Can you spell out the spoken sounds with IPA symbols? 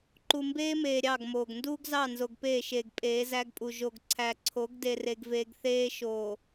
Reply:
ǃu˨mbeː˦meː˨ ɾʲɑ˦˨ɡ moː˨ɡ nduː˦ɡzɑ˦˨ nzo˨ɡpeː˦˨ʃeː˨ɡ pʼeː˨˦zæ˦ɡpʼu˨ ʒo˨ɡǀʰæ˨ǀʰo˨˦ɡ de˨re˨ɡveː˨ɡ θeː˦ ʃoː˨

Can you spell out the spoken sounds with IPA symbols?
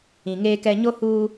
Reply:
ĩ˨ŋeː˦kɛ˦ ɲo˦ huː˦

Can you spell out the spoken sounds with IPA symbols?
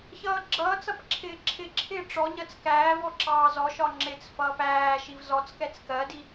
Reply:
çʌːɡ͡ǁʌːt͡sʌp ǁʰɪːǁʰɪǁʰɪː ʈ͡ʂɔɲɜt͡s kæːvɔ ǁɑːzɔʃɒ ŋ͡ǁɪt͡sfʌːp æː ʃivzɔt͡skɛt͡s kɜdi

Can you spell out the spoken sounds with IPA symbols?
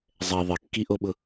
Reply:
zˤɛ ðˤɪkːiʔoɓʊ

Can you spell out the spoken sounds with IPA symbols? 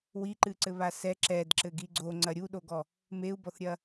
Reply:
wiǃɨǀɘβa sɛ ǁɛdǁɘɡi ɡ͡ǀoŋ͡ǀɐ ɾʲuɗoɡɔ | meu̯bɔθɾʲɐ

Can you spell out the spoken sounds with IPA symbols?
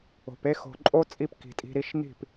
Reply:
o̤˨pe˦ xo̤˨ǃʼo˦t͡sʼi˧p ki̤˨tʼi̤˧ɾi˧ʃ n̪i̤˦˨p

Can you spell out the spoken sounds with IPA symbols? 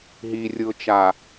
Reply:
ɦirʲɯʊ̯t͡ʃa

